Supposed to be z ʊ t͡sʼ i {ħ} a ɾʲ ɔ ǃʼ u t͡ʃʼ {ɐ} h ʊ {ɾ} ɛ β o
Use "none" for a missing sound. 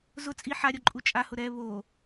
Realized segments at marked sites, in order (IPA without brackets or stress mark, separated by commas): ħ, a, ɾ